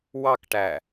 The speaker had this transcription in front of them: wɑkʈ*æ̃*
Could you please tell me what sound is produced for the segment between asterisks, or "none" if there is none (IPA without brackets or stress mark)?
æ